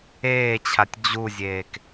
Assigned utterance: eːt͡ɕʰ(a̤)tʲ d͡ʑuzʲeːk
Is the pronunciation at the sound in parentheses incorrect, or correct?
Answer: incorrect: a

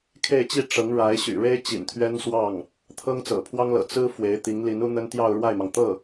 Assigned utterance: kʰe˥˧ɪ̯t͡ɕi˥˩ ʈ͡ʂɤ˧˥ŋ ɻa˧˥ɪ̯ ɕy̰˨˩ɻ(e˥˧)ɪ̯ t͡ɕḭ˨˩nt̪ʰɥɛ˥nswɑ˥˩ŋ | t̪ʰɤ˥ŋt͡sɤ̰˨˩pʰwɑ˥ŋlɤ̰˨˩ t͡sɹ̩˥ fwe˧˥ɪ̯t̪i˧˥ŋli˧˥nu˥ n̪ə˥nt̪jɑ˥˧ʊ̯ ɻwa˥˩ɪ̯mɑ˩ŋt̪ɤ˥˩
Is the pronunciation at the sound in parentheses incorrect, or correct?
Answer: incorrect: e˥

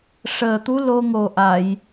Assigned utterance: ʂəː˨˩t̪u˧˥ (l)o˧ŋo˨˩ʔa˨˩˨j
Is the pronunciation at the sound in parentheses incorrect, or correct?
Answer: correct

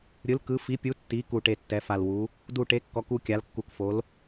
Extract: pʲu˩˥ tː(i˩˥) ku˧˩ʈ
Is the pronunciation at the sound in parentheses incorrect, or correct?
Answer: correct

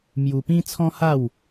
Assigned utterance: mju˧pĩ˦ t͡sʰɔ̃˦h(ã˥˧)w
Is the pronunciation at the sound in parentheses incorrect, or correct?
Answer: incorrect: a˥˧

